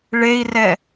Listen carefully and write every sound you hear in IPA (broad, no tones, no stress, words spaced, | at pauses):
ɭei̯rɛ